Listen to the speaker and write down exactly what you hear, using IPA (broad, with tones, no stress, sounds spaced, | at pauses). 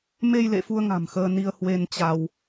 m e˧ j l ḛ˧˨ f u˧ ə̯ ŋ a̤˨˩ m x əː˧ n i˧ ə̯ h w e˧ n t͡ɕ a˧ w